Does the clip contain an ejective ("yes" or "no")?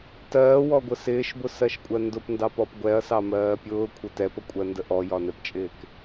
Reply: yes